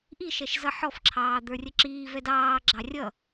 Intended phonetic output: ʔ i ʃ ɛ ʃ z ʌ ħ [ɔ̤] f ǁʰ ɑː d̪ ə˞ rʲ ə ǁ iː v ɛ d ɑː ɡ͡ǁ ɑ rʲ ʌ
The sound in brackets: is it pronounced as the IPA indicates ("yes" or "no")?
no